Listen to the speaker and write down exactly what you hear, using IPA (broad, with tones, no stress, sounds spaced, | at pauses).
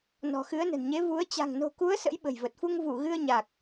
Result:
n ɔ̤˨˩ x ɨ˨˦ ə̯ n ə̤˨˩ n ɲ e˨˦ v u˨˦ ə̯ t͡ɕ a̤˨˩ ŋ n o̤˨˩ k u˨˦ ə̯ s ə̰˧˥ j ɓ ə̤˨˩ j v ə˨˩ t̚ f u˧ ŋ v u˧˩ ɣ ɨ˧ ə̯ ɲ a˨˩ k̚